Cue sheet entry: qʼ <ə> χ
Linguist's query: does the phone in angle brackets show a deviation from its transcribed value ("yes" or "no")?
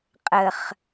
no